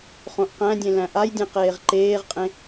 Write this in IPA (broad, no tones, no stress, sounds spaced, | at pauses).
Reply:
χ õ ʔ q æ̃ dʲ ẽ l æ̃ ʔ a j dʲ ẽ q eː ʁ ǃ eː ʁ qʼ ẽ